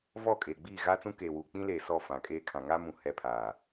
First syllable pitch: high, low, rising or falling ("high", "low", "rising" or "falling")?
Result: falling